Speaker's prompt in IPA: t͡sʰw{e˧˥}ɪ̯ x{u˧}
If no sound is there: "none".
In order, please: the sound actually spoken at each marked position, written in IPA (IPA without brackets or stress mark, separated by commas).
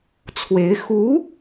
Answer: e˧˥, u˧˥